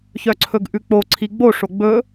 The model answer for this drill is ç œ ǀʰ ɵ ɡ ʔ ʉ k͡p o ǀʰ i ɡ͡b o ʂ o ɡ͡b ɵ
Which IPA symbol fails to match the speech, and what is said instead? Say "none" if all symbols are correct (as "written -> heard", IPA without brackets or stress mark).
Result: none